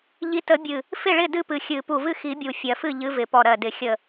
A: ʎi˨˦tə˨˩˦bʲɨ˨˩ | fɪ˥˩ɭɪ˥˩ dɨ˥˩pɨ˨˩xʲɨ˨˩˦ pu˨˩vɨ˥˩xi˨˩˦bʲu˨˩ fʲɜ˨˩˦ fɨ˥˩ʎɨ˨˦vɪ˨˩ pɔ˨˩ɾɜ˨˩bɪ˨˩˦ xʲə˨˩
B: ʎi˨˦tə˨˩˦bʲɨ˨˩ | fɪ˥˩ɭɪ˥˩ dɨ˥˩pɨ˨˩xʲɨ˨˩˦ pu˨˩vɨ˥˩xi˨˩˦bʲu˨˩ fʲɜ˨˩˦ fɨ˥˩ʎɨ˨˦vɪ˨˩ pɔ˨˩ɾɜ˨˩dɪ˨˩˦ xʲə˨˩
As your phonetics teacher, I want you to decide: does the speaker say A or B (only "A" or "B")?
B